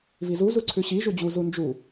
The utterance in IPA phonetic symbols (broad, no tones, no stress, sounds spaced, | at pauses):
v i z u z u ǀʰ ʉ ɕ i ʒ u d͡ʑ u z u n d͡ʒ u